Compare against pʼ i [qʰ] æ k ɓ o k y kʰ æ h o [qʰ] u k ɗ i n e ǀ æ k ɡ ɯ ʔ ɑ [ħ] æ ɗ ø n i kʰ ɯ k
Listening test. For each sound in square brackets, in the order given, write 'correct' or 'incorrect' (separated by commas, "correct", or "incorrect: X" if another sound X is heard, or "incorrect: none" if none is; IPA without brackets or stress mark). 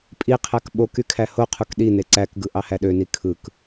correct, correct, incorrect: h